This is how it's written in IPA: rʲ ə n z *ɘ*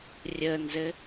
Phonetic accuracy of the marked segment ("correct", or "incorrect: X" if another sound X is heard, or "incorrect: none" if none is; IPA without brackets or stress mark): correct